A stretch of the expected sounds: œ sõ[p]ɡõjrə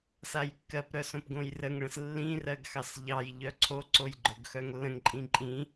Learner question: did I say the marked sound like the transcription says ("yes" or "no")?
yes